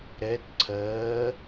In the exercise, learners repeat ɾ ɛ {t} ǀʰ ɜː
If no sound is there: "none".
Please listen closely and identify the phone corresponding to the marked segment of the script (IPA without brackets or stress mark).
t